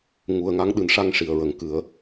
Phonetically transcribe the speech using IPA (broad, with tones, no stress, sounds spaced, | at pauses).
ŋ u˨˩ ə̯ ŋ a˧˥ ŋ ɗ ɨ˨˩˦ n ʂ a˧ ŋ ʂ i˨˩ ə̯ ɹ ə˨˩ ŋ k ɨ˨˩˦ ə̯